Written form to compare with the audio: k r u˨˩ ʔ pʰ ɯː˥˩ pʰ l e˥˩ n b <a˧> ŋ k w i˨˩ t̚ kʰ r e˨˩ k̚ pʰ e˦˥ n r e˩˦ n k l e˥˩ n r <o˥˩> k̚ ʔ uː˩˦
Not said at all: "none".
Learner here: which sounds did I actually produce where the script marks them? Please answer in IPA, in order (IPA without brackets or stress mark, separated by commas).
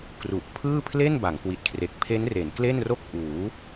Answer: a˩˦, o˥˩